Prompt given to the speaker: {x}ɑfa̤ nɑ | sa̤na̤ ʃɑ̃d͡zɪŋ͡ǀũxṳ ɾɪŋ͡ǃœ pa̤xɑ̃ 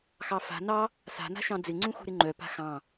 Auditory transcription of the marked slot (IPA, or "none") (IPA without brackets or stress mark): x